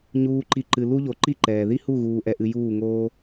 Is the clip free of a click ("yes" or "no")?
no